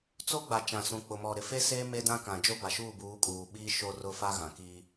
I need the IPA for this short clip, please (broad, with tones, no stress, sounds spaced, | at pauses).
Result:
t͡s o˦ ɡ͡b a˨ t͡ʃ ã˨ s ũ˨ k͡p ʊ˨ m ɔ˨ ɾ ɪ˨ f e˦ s eː˦ m e˦ d ã˦ k ã˨ d͡ʒ o˦ b a˨ ʃ uː˦˨ b uː˨˦ kʼ uː˨ ɓ iː˦ ʃ o˦ r ʊ˦ f a˦ ɣ ã˨ k iː˦